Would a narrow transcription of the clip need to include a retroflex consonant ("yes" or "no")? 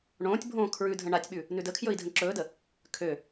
yes